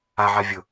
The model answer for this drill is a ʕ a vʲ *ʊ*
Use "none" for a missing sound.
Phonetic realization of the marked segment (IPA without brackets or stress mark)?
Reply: ʊ